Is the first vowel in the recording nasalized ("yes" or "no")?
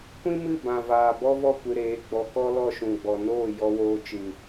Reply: yes